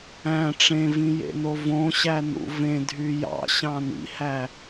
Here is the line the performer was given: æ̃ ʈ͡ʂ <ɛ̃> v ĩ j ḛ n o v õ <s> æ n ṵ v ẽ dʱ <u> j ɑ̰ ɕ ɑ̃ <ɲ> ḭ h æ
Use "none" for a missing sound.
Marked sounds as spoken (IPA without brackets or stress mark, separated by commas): ẽ, ɕ, y, n